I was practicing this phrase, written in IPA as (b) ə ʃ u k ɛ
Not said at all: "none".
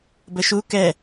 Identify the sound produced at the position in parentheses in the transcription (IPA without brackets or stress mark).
b